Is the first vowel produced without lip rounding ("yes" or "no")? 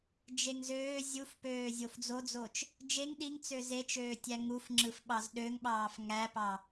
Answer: yes